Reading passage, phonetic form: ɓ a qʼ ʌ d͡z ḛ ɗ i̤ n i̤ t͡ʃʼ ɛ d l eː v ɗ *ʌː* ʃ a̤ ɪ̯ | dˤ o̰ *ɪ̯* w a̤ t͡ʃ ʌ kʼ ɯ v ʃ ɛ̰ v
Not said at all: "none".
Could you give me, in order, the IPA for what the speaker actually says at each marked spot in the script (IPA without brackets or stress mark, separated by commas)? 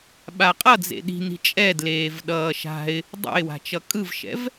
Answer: ʌː, ɪ̯